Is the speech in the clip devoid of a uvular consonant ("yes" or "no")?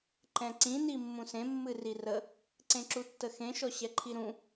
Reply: yes